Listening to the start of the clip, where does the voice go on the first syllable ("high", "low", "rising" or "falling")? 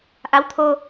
rising